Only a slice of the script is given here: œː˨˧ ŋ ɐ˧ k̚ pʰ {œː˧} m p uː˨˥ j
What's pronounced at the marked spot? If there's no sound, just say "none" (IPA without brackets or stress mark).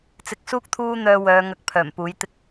œː˨˩